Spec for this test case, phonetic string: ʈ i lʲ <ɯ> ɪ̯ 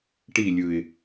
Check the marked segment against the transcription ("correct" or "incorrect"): correct